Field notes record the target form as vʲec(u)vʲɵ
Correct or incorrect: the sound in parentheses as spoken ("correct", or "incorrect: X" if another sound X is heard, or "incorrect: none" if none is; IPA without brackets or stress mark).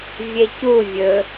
correct